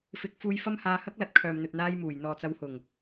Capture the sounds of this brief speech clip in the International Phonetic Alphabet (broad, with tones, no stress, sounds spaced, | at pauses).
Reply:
f ɪ˨˥ k̚ f uː˧ j f ɐ˥ m h aː˧ h ɐ˥ k̚ l ɐ˨˥ t̚ kʰ œː˨ m n̪ ɵ˨ t̚ n̪ aː˧ j m uː˨˩ j n̪ ɔː˨ t͡s ɐ˨˧ w h ʊ˨˩ ŋ